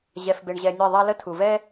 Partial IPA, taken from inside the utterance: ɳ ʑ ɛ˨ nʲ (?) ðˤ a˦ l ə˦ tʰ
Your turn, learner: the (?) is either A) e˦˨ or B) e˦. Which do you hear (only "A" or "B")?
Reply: A